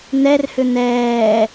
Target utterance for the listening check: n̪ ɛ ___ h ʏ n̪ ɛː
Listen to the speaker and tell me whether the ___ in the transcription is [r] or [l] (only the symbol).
r